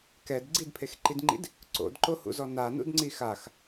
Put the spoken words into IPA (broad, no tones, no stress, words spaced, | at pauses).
kɛd ɡ͡ǀidpʰexǃidŋ͡ǃḭd | ǀo̰dǃohṵzɔ nanṵdŋ͡ǀi xax